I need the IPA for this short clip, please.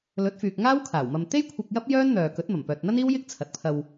lɵ˨˥t̚fyː˨k̚ŋaː˥w kʰaː˨˩wmɐ˧m t̪e˥jkʷʰɪ˧k̚ jɐ˥p̚jœː˥nn̪œː˨kɵ˨˥t̚ mɐ˨˩mpœː˨t̚n̪ɐ˥niː˥w jɪ˥k̚t͡sʰɐ˨t̚pʰɐ˧w

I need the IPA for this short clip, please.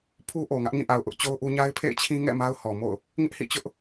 pʰu˦ʔo˨ŋä˦ʔ ŋĩ˦˨ʔa˨ʊ̯ ʔʊ˦ʔt͡ɕo˦ʊ̯ʔu˦ ɲa˦ɪ̯pʰḛ˦˨ɪ̯ t͡ɕʰĩ˦ŋɛ̰˦˨ ma˦ʊ̯hɔ˨mo̰˦˨ʊ̯ | ŋɪ˦ʔhḭ˦˨t͡ɕʊ˦ʔ

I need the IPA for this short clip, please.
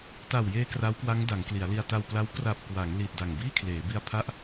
ta˨˩wjeː˧ kra˦˥wkwa˦˥ŋ da˩˦ŋkli˩˦a̯li˧a̯ ta˧wpla˦˥w kra˨˩p̚kwa˩˦ŋ li˨˩t̚da˨˩ŋ biː˥˩kʰleː˩˦bi˧a̯ pʰa˥˩ʔ

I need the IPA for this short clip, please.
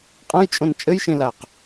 qʼɐ̃jt͡ʃʼõn t͡ʃʼɘjʃẽlaq

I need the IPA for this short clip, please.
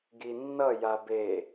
ɡinːʌ jabe

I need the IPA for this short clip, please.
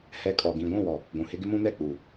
hɛ˨ kʼɔ˨ ɡĩ˨ ɡʷũ˦˨wɔ˨ | ɡʷũ˨hɪ˦ ɡɪ˦mũ˦nɛ˦˨k͡puː˨

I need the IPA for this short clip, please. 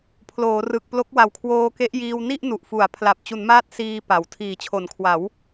pʰloː˩˦rɯ˨˩k̚plo˦˥k̚ wa˨˩wkʰwoː˧ke˦˥ʔjiː˧w ni˥˩ʔnu˨˩ʔfu˩˦a̯ pʰla˨˩p̚t͡ɕu˩˦nmaː˦˥t̚ siː˧ pa˨˩w tʰiː˨˩t͡ɕʰo˩˦nkʰwa˩˦w

